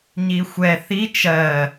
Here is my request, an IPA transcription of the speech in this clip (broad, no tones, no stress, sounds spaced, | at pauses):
ɲ i xʷ ɛ θ i t͡ʃ ɜ